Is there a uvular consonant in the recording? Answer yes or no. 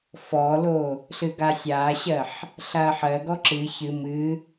no